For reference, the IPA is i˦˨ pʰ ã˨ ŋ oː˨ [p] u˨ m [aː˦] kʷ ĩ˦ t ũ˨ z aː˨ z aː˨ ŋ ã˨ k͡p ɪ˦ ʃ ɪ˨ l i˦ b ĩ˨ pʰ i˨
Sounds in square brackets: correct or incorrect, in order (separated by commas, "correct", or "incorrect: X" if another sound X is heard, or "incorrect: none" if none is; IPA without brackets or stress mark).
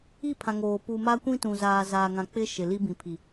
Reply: correct, incorrect: a˦